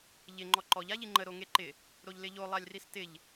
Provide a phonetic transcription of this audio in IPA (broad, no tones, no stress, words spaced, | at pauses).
ʎɪ ŋ͡ǃɔǃɔʎ aʎiŋ͡ǃə ɾoŋeǃɪ | ɾoʎlɪʎo lˠalʲristɪʎ